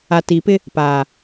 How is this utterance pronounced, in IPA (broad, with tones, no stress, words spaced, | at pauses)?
a˨ti˨pɪ˦ | paː˨